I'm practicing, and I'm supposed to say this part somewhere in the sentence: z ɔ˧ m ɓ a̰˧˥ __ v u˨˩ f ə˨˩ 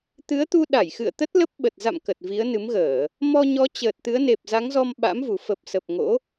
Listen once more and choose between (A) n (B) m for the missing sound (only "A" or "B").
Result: B